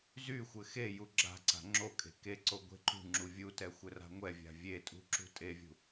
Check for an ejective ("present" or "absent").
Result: present